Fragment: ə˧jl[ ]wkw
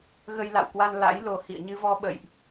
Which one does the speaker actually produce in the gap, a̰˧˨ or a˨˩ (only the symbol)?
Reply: a̰˧˨